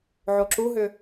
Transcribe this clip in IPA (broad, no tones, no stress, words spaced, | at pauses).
ʕoǁuɦʏ